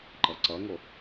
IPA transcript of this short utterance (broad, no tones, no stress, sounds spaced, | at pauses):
ǃ ʌ ǀ ʌ ŋ o